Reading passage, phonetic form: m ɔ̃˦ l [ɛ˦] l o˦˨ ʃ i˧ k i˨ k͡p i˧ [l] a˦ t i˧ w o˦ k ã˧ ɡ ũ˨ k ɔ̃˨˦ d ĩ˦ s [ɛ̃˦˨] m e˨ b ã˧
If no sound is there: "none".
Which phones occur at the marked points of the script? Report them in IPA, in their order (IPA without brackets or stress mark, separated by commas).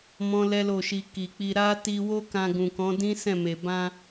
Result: ɛ˦, ɾ, ɛ̃˦˨